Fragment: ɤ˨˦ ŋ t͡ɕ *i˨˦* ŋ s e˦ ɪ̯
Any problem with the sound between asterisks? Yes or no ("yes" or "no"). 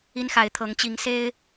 no